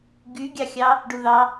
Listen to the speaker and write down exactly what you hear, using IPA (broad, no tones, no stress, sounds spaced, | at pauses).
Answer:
ɡ y ɡʲ ɑ xʲ ɑ | ɖ u ð ɑ